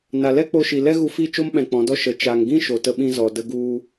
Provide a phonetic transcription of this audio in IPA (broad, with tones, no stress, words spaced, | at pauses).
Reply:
na˨lɛ˦k͡po˧ʃi˨ lɛ˦ ɣu˧fi˦˨t͡ʃo˦m ɓɛ̃˨ k͡pɔ̃˨˦dɔ˦ ʃə˨ t͡ʃa˨ŋɡĩ˦ ʃo˨ tə˧ɓĩ˧ zɔ˨də˧ɡu˧